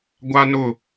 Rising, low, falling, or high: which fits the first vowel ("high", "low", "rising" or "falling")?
high